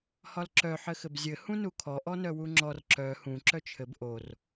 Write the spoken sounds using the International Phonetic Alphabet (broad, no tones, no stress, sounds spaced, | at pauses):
h ɒ l ǁ œ ħ ɘ x ɘ b zʲ ɘ h ũ n u kʰ ɔ ʔ ɔ n œ w u ŋ͡ǁ ɔ r ǁ œ h ũ ǁ œ t͡ʃʰ ɘ b ʔ o r